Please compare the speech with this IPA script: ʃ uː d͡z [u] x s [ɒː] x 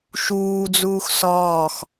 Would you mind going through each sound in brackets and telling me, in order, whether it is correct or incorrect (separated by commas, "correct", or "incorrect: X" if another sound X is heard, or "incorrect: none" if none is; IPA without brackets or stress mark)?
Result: incorrect: uː, correct